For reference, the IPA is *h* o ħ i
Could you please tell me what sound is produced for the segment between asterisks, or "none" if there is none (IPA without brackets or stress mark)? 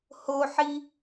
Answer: h